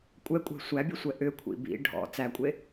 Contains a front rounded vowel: yes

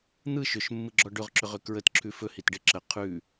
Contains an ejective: no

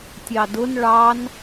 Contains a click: no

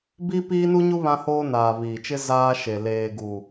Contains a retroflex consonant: no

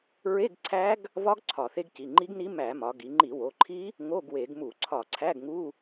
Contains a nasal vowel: no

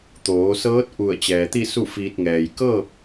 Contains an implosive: no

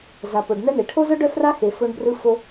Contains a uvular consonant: no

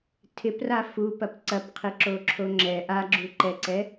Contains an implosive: no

